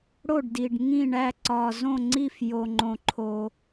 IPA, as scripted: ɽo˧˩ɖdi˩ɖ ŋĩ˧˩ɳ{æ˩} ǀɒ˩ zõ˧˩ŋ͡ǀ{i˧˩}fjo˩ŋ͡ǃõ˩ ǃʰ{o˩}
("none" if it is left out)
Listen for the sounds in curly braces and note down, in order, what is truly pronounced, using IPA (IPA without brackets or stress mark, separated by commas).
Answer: æ˧˩, i˧˩, o˩